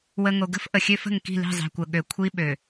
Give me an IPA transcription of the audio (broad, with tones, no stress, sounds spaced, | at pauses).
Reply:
w ə˨ ŋ o˨ ɡ ə̤˦ f ʔ ə˨ xʲ ø˦ f ə̤˦˨ ŋ k i̤˦˨ l i̤˦˨ zˤ i̤˨ kʷ ə˨ ɠ ø˨ kʷʰ i˦ ɓ ø˨